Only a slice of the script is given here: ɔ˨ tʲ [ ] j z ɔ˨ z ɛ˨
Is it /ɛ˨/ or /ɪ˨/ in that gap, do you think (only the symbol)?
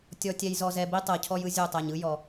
ɛ˨